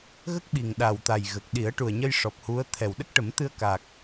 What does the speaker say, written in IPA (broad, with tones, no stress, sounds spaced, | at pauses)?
ɣ ə˦˥ k̚ ɓ i˨˩ ŋ ɗ a˨˩ w t̪ a˨˩ j ɣ ə˨˩ k̚ ɗ i˨˩˦ ə̯ ʈ u˨˩ ə̯ ɲ ə˧ j ʂ ɔ˨˩ p̚ h u˧˥ ə̯ t̪ʰ ɛ˨˩ w ɗ ə˦˥ k̚ ʈ ə˨˩˦ m t̪ ɨ˧ ə̯ k a˨˩ k̚